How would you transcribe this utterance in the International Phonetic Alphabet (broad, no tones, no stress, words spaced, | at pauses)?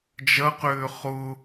d͡ʒɐqʏː χʊ